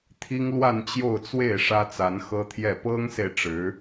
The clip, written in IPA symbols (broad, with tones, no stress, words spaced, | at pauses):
t̪ʰi˥ŋlwa˥˧nt͡ɕjo˥˧ʊ̯t͡swe˥˩ɪ̯ ʂä˥t͡sa˧˥nxɤ˥t̪ʰjɛ˥˩ pɤ˥ŋse˨ɪ̯ ʈ͡ʂɻ̩˧˥